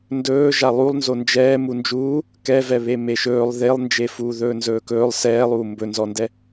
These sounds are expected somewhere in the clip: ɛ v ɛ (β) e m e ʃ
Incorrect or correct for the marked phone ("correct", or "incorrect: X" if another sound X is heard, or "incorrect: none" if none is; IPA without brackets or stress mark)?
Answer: correct